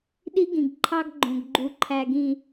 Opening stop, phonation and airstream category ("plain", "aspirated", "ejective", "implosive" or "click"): implosive